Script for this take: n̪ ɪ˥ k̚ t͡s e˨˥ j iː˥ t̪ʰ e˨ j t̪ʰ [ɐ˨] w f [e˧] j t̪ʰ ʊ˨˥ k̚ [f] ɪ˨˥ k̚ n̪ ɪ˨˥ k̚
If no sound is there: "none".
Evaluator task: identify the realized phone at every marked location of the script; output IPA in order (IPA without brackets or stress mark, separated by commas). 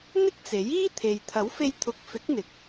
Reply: ɐ˨˥, e˧, f